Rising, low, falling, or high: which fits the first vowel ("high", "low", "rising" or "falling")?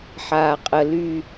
low